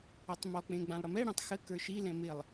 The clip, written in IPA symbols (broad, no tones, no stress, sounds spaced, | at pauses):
ɔ tˤ m ɔ k͡p ẽ ɡ͡b ã lˠ ɽ ə m ɛ ɽ ẽ tˤ x ə k ə˞ ʃ i l ɛ̃ m ɪ lˠ